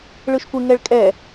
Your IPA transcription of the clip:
ɭ ɯ ʃ kʷ ɪ ŋ ɛ ɭ kʼ ɛ

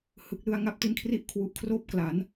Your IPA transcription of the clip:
h ɯ˨˩ k̚ l ɯ˧ a̯ ŋ a˦˥ p̚ t i˦˥ n kʰ r i˥˩ ʔ kʰ w u˨˩ ʔ kʰ r oː˥˩ p̚ k l a˩˦ n

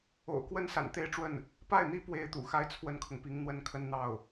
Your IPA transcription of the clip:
o̰˨˩ ʊ̯ k w ə˥ n s a̰˨˩ n t̪ e˥ ɪ̯ ʈ͡ʂ w ə˥˩ n | p a˥˩ ɪ̯ n̪ i˥ p w e˥ ɪ̯ t̪ ṵ˨˩ x a˥ ɪ̯ t͡sʰ w ə˥ n kʰ ʊ˨ ŋ p i˧˥ ŋ n̪ w ə˥ n kʰ ə˥ n n̪ ɑ˥˩ ʊ̯

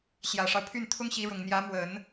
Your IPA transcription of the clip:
ɕ j ä˨˩ ʂ ɑ˦ ʊ̯ pʰ y˥˩ n t̪ʰ ʊ˥ ŋ ɕ i˧˥ ɻ ʊ˨˩ ŋ n̪ j ä˧˥ m w ə˨˩˦ n

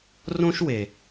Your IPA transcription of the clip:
r õ˦ ʃ w e˨

